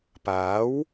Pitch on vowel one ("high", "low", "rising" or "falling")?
rising